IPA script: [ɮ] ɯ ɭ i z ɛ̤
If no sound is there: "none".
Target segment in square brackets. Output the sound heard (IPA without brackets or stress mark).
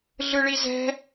ɮ